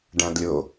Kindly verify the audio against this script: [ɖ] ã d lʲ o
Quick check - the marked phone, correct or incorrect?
correct